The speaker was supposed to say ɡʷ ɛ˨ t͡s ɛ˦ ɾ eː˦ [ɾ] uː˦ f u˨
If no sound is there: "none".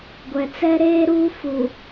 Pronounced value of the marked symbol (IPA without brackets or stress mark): ɾ